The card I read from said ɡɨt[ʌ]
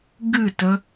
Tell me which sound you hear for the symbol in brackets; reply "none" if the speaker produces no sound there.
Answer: ə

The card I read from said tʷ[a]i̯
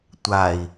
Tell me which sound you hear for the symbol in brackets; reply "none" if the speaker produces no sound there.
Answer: a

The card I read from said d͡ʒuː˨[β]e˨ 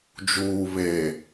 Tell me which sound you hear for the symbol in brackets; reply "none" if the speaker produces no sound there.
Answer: β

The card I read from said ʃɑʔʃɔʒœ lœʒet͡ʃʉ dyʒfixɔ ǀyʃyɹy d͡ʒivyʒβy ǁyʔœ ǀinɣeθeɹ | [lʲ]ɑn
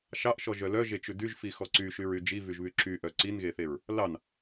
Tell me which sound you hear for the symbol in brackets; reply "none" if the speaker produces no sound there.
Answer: l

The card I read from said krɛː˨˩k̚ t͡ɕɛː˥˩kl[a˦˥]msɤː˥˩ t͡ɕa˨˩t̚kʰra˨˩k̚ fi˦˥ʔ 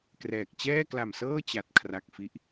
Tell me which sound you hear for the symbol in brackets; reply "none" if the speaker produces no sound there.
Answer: a˨˩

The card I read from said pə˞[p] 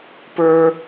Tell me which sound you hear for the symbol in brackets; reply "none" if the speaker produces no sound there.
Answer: none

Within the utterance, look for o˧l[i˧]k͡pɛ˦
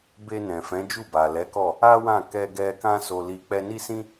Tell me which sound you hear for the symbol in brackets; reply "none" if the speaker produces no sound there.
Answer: i˧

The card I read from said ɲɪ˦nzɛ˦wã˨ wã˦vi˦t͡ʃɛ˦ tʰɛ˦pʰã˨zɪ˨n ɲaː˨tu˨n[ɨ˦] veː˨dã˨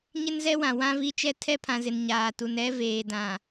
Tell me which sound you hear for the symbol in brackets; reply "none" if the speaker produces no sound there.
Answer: ɛ˦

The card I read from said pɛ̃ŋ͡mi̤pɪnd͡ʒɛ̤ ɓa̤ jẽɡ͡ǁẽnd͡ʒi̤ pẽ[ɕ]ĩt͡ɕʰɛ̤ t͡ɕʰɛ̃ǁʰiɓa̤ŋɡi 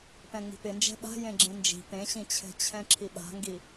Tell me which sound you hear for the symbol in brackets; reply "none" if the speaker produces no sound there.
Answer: ɕ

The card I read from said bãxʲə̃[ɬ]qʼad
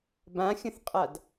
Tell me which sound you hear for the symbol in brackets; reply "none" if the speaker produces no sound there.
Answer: θ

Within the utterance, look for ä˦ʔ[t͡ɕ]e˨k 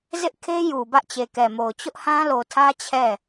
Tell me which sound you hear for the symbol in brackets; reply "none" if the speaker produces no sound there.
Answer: t͡ɕ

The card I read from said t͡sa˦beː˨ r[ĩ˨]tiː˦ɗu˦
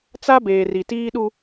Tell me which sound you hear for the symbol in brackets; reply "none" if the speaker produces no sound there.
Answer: i˨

